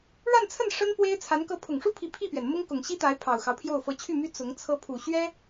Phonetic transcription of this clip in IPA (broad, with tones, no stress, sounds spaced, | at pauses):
ɻ a˥˧ n t͡sʰ ə˥˩ n ʂ ə˥ n p w e˥ ɪ̯ t͡sʰ a˧˥ n k ɤ˧˥ pʰ ʊ˨˩ ŋ ʂ u˥ pʰ i˧˥ pʰ i˥˩ p ɥ ɛ˩ n m ʊ˥ ŋ k ʊ˨˩ ŋ ɕ i˥ t̪ a˧˥ ɪ̯ pʰ ɑ˨˩ ʊ̯ x ɑ˦ ʊ̯ pʰ j o˥˩ ʊ̯ f ɤ˧˥ t͡ɕʰ y˥˩ m y˥ t͡s ʊ˧˥ ŋ t͡sʰ ɤ˧˥ pʰ u˨˩ ɕ ɥ ɛ˥